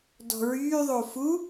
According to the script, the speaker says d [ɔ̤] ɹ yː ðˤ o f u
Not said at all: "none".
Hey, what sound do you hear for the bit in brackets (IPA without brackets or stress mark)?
ɔ̤